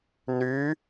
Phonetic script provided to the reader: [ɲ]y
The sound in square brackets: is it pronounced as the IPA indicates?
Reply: no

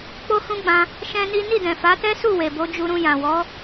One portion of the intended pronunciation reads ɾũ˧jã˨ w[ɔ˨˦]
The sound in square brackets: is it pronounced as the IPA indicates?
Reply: yes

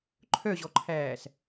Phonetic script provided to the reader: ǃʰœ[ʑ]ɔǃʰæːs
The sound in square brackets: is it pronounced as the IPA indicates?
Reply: yes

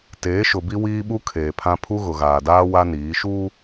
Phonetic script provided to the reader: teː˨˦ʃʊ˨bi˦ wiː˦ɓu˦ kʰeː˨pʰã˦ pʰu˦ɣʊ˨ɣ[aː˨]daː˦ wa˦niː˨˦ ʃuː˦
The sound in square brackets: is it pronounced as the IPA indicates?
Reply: yes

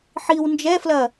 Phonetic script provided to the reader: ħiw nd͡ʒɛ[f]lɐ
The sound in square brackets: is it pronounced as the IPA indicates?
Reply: yes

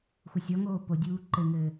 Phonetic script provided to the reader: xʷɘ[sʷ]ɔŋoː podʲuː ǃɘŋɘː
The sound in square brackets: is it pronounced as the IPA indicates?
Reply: no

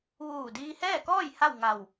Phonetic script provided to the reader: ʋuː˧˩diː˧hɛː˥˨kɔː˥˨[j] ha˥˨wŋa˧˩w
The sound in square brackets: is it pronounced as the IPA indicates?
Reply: yes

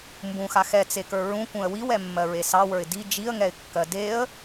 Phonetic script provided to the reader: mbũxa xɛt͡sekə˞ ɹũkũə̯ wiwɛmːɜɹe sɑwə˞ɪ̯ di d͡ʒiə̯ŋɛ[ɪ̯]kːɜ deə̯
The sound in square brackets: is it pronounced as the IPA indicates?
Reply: yes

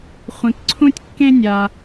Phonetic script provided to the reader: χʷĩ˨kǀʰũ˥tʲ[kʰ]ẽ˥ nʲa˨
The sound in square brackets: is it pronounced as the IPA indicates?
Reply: no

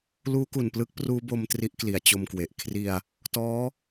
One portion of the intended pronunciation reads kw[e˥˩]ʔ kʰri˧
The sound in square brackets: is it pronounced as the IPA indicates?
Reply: no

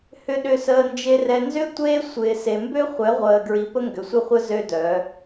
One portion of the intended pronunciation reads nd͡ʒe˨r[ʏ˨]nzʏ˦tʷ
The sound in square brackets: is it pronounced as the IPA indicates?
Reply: no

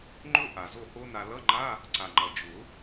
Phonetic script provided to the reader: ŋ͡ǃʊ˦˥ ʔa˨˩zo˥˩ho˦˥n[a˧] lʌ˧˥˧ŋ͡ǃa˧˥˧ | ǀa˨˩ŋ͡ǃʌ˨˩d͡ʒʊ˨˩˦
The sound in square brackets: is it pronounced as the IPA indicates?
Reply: yes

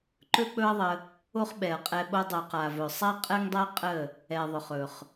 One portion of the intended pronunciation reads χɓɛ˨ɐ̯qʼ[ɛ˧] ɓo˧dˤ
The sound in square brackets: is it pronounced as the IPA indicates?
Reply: yes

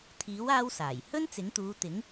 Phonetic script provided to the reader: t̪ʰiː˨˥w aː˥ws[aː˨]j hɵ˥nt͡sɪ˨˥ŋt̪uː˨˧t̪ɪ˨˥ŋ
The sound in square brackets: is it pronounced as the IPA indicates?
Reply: no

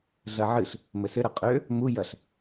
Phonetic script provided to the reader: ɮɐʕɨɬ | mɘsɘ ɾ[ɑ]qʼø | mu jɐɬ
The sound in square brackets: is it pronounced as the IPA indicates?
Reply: no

